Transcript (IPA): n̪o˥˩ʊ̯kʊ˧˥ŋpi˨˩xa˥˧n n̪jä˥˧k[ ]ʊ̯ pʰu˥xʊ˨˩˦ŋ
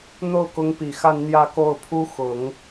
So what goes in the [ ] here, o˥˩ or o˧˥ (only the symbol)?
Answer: o˥˩